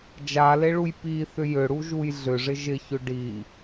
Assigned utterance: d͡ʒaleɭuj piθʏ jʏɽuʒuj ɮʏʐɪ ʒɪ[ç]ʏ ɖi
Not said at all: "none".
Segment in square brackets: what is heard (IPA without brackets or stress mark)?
ç